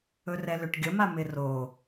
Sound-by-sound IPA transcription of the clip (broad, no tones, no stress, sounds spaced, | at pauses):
ɵ r ɛ l ʏ ʈ ɡʲ ə m a m ɪ r o